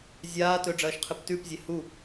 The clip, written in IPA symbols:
zʲ aː t ɵ ɖ͡ʐ ɐː ʃ qʰ ɨ p t ʉ p zʲ e h u

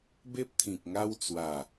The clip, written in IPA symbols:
b e˦ p̚ t̪ʰ ĩ˨ k̚ ŋ a˧ w t͡s w a˨˩

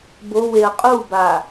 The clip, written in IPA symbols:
b o w e ɐ̯ qʼ u b a

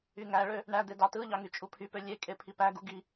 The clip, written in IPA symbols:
y ŋ æ ɭ ø | ɳ æ d̪ e d ɑ t ɯ ʎ ɑ ŋ y t͡ʃʼ u pʰ y p ø lʲ e kʼ e pʰ i p æ ɡ u ɡ i

